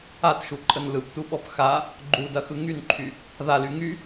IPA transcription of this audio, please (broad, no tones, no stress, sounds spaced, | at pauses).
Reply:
a t ʃ u ǃʼ ə n l ɯ p t u ɓ ɔ p x a | ɡ͡ǃ u d ɐ x ɯ ŋ y n ǃʰ y | ð a l y ŋ y